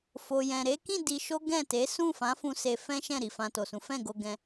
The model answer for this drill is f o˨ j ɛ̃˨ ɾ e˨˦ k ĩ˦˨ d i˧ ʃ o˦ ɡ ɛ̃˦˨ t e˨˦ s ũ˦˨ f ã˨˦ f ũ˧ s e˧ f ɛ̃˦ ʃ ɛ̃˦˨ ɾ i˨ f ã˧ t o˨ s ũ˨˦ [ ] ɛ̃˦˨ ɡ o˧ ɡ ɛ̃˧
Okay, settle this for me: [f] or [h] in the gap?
f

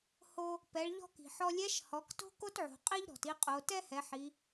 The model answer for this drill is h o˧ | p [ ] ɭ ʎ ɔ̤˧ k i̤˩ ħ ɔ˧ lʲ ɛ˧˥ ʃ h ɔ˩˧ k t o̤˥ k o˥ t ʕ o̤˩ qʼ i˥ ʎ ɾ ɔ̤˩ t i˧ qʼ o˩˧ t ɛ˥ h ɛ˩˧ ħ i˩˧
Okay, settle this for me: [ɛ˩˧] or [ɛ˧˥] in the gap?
ɛ˩˧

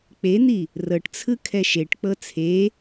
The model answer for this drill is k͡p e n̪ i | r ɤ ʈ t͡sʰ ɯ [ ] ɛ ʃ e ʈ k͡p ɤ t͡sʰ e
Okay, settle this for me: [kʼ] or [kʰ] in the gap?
kʰ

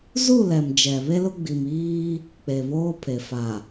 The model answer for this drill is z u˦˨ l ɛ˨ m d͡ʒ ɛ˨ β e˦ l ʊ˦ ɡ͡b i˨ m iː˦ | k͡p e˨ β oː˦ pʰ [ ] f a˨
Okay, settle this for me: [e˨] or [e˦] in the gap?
e˨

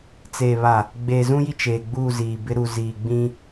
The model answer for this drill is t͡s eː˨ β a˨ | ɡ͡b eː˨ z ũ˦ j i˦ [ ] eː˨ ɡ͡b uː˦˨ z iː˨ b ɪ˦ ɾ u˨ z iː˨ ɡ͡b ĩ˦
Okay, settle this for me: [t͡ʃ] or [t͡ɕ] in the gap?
t͡ʃ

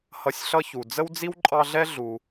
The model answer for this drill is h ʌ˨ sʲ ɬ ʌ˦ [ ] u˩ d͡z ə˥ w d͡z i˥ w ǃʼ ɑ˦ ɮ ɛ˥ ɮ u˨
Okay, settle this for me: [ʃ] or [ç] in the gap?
ç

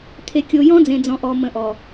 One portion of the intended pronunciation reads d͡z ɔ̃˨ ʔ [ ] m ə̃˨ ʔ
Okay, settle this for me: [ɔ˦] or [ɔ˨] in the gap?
ɔ˨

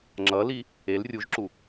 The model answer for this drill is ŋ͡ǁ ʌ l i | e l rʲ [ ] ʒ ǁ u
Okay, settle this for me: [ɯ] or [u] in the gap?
u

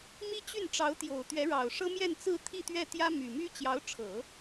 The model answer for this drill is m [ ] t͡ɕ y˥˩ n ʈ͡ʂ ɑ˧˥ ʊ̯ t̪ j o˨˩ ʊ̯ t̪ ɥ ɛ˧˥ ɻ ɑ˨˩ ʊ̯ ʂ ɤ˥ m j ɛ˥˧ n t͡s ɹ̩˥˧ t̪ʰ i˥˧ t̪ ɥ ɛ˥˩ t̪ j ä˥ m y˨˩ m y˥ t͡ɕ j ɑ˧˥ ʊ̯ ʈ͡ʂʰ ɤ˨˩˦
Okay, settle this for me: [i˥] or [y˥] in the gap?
i˥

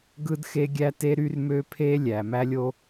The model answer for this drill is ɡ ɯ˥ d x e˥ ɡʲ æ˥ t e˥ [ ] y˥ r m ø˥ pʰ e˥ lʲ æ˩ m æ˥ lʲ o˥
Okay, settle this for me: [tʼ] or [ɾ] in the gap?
ɾ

